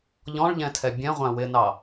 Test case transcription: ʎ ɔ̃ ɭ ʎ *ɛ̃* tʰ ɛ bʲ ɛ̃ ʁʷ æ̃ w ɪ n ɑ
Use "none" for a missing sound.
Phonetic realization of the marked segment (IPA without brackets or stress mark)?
ɛ̃